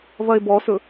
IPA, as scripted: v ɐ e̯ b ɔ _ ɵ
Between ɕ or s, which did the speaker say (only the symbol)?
s